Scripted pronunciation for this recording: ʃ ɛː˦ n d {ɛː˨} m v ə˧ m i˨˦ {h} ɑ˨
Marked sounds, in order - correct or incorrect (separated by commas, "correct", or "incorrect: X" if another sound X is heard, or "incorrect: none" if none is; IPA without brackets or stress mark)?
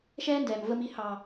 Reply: correct, correct